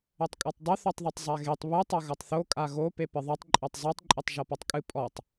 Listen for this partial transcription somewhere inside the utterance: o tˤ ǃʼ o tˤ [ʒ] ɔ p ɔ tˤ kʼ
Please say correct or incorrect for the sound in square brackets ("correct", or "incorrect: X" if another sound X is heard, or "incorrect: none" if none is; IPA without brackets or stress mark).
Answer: correct